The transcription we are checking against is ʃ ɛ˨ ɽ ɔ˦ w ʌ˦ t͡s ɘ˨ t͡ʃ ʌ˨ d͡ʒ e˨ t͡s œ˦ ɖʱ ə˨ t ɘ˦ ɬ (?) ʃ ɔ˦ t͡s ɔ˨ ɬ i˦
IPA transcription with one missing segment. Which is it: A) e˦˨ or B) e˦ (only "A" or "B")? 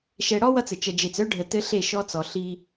A